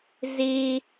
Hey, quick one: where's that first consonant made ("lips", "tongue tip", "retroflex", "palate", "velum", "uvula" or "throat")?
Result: tongue tip